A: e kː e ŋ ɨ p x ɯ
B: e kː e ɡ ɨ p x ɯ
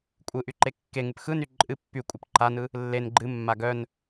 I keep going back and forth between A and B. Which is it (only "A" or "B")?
A